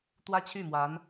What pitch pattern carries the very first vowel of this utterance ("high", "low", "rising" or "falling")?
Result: high